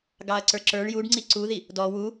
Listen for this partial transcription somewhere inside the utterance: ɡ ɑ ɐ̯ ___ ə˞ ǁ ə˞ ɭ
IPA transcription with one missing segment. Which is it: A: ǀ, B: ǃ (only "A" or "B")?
A